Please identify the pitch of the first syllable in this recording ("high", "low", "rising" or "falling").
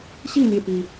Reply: falling